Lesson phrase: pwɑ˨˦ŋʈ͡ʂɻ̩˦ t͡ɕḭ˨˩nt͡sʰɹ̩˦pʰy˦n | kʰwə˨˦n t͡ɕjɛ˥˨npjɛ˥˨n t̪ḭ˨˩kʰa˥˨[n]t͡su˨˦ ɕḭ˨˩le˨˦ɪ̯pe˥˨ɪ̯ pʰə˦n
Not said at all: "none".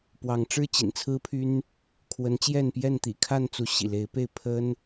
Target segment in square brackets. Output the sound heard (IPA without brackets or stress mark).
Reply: n